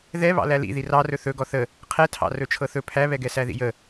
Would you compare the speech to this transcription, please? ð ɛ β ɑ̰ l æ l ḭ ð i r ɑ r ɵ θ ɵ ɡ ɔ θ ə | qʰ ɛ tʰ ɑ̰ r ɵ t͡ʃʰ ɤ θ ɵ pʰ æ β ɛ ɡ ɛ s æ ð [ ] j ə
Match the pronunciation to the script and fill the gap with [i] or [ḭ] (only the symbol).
ḭ